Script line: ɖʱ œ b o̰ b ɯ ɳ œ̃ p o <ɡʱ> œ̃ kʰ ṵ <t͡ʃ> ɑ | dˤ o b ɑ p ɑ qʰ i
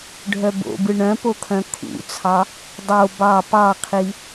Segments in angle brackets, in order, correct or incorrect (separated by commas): incorrect, incorrect